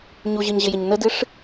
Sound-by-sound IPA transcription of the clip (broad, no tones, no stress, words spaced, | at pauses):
ɲuʑɨɲʑɪjɪɲ nədɨʂ